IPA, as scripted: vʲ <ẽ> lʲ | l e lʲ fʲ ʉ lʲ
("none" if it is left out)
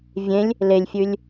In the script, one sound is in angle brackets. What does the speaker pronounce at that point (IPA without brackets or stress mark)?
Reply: ẽ